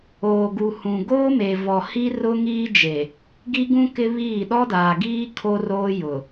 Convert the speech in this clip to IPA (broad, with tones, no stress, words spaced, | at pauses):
oː˨ɡu˨hũ˨ ɡoː˦me˨ vɔ˨hi˦ rʊ˦ŋiː˦d͡ʒe˨ | ɡi˦ɡũ˦kɪ˦ βiː˦˨ ɗɔ˦daː˨ɡiː˦ kʰo˦roː˦jʊ˨